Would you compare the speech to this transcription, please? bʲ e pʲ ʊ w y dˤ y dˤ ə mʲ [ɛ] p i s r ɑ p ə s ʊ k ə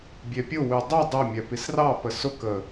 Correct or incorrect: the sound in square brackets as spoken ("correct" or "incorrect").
correct